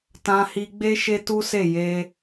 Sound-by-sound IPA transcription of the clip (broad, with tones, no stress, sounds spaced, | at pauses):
t ã˧ h i˧ ɡ͡b e˦ ʃ e˦ t u˦ s e˦˨ j e˧